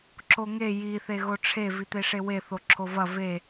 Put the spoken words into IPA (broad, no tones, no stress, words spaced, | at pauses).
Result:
ǁoŋe ji θeɣoʈ͡ʂʰe vit̪eʂewe θoǁʰovɐ ve